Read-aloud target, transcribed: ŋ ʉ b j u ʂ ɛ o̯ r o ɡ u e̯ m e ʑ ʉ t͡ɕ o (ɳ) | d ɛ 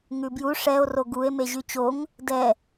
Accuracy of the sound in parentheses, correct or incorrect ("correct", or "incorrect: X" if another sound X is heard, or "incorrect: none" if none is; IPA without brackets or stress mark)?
incorrect: ŋ